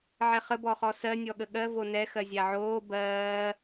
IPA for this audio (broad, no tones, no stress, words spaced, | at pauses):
ʕɛχə bɔχɔsɜ nʲɔɠəɠɜ vonɛ xɜzʲaʕoː bɜː